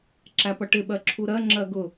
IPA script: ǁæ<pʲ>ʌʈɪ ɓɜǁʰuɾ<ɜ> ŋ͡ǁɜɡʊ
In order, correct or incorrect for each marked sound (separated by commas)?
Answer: incorrect, correct